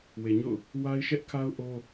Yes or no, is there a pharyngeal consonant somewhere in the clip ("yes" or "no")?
no